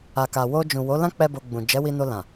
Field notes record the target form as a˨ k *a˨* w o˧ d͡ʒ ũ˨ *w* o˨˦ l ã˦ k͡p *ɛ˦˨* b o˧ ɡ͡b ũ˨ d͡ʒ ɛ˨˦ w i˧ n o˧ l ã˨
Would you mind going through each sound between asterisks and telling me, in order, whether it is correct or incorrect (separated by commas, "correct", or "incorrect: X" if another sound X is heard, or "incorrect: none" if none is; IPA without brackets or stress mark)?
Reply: correct, correct, incorrect: ɛ˦